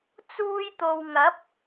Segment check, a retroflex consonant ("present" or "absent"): absent